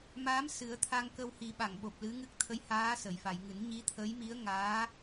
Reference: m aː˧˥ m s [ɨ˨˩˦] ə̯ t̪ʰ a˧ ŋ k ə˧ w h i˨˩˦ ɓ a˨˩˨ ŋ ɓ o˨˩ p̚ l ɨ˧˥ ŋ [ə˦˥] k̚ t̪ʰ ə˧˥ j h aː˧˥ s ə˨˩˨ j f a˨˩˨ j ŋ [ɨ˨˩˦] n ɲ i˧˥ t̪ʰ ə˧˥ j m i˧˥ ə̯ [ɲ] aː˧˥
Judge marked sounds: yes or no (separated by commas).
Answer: yes, no, yes, no